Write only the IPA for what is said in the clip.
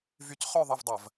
v y˧˥ c χ œ˥˧ ðˤ ɐ˥˧ v dˤ ɐ˧˩˧ v

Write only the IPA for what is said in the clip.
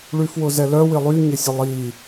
ɭ y f w ʊ z ɛ l œ w ɪ lˠ y ɲ ɪ sʲ ʊ lˠ i

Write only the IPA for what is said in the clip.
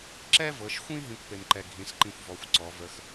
ǁ ɛ˥ v ɤ˩˧ ʃ xʷ ĩ˥ ɦ ĩ˥ kʷ p e˧ m ǃ ɛ˧ ɡʱ ĩ˩˧ s ǃ ĩ˧ xʷ v ɔ˩˧ xʷ ǀ ɔ˩˧ v ə˧˥ x

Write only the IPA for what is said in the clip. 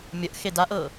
mʲ ə ʔ x e d a ʔ ɤ

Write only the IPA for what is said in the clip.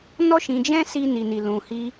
n ɔ˦ ʃ ĩ˧ d͡ʒ ɛ̃˦ s i˦ n i˧ n i˧ l ũ˧ h i˦

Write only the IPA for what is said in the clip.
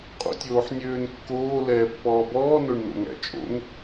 qʼ o̰ tʲ oː ħ nʲ øː n kː oː l ɛː pː ɔː b ɔː n o ɳ n o̰ ŋ æ̰ t͡ʃʼ o̰ ŋ

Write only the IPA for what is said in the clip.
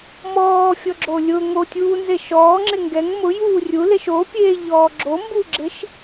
m ɔː fʲ ɔ ɡ͡ǁ o lʲ ʊ ŋ o tʲ uː n z e ʃ ɔː ŋ͡ǁ ɪ ŋ ɡ ɛ ŋ m ʊ j uː rʲ u l e ʃ o pʲ eː ʎ ɔː ɡ͡ǁ o m b u ɡ͡ǁ ɪ ʃ

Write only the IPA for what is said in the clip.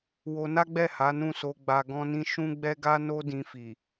w o˧ n a˦ ɡ͡b ɛ˦˨ h a˨˦ n ũ˦˨ s o˧ ɡ͡b a˧ ɡ ɔ̃˦ n ĩ˦ ʃ ũ˦ ɡ͡b ɛ˦ ɡ a˦ n o˦ d ĩ˧ f i˨

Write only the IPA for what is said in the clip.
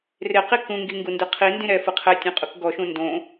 r e q i k ũ ŋ ɡ i ŋ ɡ u n d ɯ qʰ i n d ĩ ɾ ɛ f ɯ qʰ ɛ tʲ ũ qʼ u k ɡ ɔ ʃ ũ n d õ

